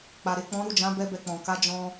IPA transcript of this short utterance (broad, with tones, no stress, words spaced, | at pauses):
k͡pa˨ɾe˨ k͡pɔ̃˨˦ɾu˦˨d͡ʒã˨˦ bɛ˦bɛ˧k͡pɔ̃˨ ka˨˦ d͡ʒɔ̃˦